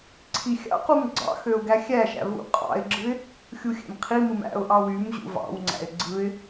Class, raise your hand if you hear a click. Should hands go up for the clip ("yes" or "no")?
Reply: yes